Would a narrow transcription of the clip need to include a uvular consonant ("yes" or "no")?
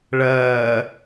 no